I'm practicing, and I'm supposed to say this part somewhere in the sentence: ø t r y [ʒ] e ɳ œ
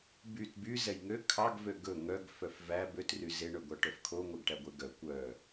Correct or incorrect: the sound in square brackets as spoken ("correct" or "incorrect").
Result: incorrect